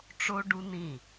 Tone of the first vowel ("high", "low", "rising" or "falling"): high